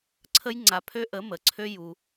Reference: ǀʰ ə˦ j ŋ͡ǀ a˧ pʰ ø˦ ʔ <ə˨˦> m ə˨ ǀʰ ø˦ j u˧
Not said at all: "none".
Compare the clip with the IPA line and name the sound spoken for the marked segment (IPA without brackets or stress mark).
ə˨˦